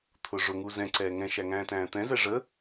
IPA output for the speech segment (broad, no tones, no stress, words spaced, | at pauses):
t̪ʰʊʐʊŋu zɛ̃ǀɛː ŋɛ̃ʃæŋæ̃ː tæ̃ːt̪ɛ̃zɛ ʐə